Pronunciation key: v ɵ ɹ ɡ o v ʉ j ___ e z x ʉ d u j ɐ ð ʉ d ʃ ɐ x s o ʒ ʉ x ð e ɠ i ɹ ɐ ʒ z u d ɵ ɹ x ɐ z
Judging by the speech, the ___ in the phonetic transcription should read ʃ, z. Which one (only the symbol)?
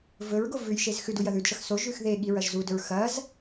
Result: ʃ